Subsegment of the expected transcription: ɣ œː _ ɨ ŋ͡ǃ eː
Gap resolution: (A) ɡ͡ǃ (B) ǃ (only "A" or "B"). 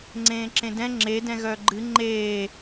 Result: A